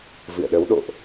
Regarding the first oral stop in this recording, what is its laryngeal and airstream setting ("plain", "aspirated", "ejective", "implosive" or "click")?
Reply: implosive